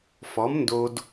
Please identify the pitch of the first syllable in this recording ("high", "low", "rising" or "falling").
rising